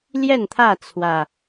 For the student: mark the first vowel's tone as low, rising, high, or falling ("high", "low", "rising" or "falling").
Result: falling